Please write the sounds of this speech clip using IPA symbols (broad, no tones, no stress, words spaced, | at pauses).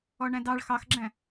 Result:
ɔɳæ̃dɑɭ xɑxɡ͡ǁæ̃